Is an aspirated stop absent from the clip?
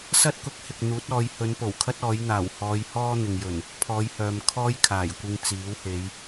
no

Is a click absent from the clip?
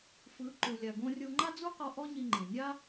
no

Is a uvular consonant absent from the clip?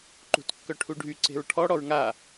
yes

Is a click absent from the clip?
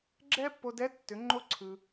no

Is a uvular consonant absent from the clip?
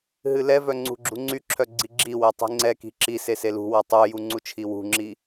yes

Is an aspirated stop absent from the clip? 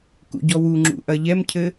no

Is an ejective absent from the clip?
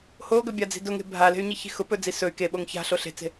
yes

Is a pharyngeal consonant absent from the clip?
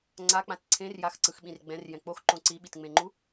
yes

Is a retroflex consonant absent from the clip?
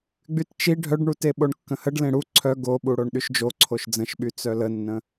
no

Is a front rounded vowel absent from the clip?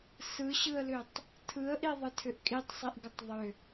no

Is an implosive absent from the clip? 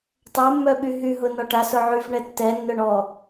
no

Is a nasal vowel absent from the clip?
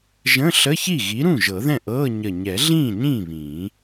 no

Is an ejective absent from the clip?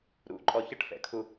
no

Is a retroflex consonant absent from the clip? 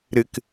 yes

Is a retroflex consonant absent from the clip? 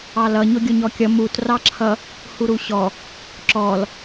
yes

